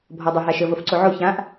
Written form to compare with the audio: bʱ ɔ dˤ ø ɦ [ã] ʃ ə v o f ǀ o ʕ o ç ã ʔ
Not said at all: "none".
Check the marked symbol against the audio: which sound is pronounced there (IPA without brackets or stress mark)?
a